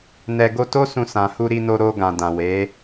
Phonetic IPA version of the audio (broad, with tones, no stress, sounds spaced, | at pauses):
n ɛ˧ ɡ o˧ t o˦ s ũ˧ s ã˨ h u˧ ɾ i˧ n o˧ ɾ o˧ ɡ ã˨ d ã˨ w e˨˦